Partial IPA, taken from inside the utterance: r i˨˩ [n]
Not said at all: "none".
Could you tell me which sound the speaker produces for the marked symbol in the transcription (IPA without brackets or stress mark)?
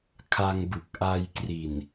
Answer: n